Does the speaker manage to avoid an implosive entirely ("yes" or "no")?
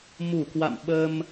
no